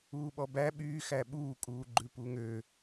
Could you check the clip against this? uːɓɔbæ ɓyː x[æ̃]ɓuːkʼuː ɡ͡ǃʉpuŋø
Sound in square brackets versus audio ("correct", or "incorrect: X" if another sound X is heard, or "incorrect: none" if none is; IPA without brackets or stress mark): incorrect: æ